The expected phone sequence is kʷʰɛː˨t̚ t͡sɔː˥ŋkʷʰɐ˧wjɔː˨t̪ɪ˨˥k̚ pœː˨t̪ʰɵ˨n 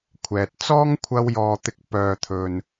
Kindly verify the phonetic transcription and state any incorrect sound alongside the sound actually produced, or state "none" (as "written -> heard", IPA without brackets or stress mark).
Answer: none